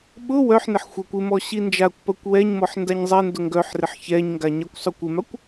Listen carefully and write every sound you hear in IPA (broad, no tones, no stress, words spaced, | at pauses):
ɓʊ wœħnɪħ xʷakʷɪmɔ ɕind͡ʒakʷpɐkʷ wɛɲmɔħ ndaɲzˤɛndʊ ŋɡœħrɪħ çɛɲŋɡa ɲakʷsˤʊkʷɪmakʷ